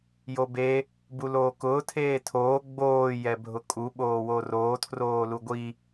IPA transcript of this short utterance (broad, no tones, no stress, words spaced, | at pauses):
jobe | buloːkʊː tʰeːtʰoː ɡ͡boː jɛbʱʊkʼu ɓoːworoː tʰroːluɡʷi